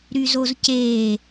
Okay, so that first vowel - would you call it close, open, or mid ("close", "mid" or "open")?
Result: close